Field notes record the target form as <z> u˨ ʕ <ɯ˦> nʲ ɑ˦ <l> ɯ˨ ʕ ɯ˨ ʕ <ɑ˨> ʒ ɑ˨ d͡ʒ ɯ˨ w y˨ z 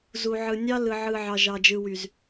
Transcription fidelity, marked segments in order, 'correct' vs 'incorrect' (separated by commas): correct, incorrect, correct, correct